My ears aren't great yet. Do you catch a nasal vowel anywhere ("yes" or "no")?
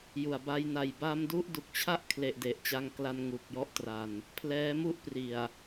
no